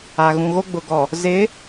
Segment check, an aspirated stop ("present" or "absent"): absent